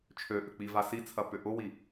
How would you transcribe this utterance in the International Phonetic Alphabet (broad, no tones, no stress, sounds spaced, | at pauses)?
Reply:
t͡ʃʰ ø ʔ ʏ k͡p i v a s i t͡sʰ ɐ p ʏ ʔ ʊ w i